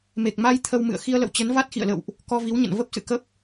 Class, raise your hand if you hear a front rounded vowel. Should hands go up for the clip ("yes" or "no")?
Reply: no